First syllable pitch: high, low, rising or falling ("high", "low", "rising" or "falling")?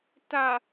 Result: low